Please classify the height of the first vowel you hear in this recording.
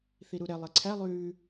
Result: high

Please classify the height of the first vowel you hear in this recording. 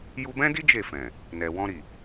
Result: high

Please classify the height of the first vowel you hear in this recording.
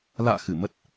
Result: low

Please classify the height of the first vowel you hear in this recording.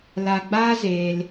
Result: low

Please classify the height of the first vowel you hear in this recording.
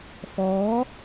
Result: mid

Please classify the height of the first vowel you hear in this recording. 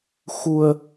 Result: high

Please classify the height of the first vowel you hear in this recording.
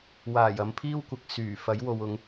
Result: low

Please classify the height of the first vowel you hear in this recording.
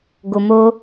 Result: mid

